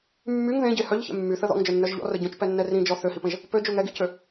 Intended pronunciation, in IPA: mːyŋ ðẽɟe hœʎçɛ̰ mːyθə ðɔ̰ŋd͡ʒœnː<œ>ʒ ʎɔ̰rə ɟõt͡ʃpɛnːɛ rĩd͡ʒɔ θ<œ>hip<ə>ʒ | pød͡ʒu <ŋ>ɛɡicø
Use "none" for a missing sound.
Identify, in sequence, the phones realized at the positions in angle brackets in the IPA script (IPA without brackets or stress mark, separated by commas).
œ, ø, ə̃, ŋ